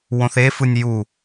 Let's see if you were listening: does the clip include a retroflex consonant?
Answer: no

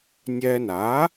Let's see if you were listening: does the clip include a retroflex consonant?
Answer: no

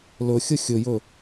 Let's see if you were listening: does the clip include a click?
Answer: no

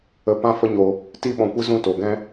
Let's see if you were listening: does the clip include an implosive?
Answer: yes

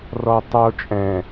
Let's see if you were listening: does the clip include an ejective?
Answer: yes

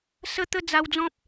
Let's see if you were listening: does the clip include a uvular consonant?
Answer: no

